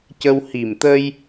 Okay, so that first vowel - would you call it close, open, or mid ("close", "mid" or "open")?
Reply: mid